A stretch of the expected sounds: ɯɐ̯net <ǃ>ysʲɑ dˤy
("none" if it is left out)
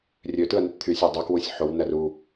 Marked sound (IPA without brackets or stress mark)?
t̪ʰ